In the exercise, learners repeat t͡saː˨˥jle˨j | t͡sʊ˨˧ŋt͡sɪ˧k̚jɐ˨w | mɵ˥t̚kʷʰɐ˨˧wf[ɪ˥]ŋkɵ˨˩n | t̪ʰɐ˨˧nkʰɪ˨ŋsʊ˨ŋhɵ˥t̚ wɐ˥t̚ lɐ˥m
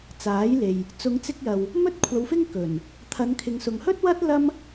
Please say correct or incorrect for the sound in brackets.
correct